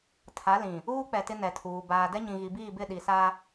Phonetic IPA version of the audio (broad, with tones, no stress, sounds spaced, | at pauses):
tʰ a˨˦ l ĩ˨ | uː˦ k͡p ɛ˨ t ɪ˦ n ɛ˨ tʰ uː˨ b aː˨ d ɛ˦ ɲ ĩ˨ ɣ i˨ b iː˦˨ b ɪ˦˨ ɗ i˨ s a˦